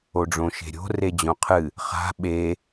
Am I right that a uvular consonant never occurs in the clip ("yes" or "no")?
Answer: no